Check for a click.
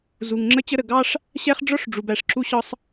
present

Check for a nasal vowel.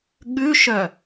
absent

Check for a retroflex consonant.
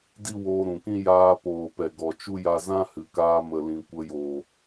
absent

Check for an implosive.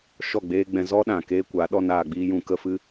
present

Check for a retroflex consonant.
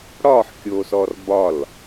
present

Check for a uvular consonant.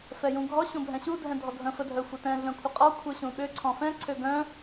present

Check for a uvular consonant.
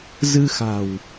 absent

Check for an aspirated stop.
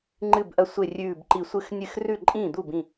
absent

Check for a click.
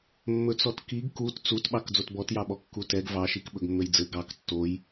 absent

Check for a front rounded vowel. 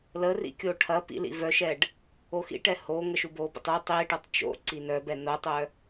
present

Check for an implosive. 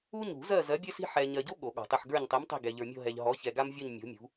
present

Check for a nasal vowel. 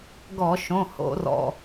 present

